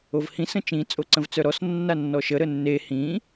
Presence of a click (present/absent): present